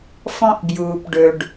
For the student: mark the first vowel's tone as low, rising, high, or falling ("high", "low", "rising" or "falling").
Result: high